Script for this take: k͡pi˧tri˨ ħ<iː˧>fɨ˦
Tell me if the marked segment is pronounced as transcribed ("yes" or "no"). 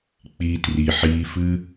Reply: yes